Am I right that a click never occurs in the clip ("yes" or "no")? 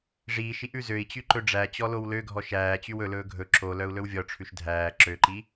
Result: no